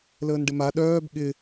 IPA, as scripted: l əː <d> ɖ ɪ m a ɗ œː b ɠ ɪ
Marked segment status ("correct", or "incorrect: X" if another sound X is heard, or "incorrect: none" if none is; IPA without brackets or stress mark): incorrect: n